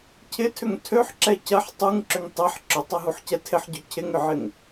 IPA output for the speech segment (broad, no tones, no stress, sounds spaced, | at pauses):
cʰ ɪ tʰ ʏ ŋ tʰ ø ħ ǁ ɛ c ɐ ħ tˤ u ŋ ǁ ʏ ŋ tˤ e ħ ǁ ʊ tˤ ɐ ɦ u ħ c ɛ tʰ ɪ ħ ɟ ø cʰ ɪ ŋ ʏ ʕ ɪ ŋ